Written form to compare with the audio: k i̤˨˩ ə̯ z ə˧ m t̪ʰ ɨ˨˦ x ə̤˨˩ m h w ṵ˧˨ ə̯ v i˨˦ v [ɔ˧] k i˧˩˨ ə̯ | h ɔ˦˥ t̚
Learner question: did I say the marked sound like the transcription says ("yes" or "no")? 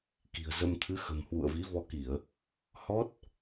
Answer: yes